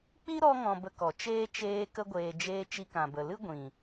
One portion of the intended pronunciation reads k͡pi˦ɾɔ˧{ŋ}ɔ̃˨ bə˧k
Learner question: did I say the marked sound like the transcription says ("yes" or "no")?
yes